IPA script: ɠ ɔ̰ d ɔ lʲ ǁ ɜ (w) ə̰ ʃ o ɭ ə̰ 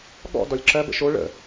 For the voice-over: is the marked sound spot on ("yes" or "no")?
no